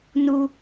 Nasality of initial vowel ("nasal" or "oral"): oral